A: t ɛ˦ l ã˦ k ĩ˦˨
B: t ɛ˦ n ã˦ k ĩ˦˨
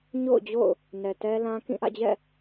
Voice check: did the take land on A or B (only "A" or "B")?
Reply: A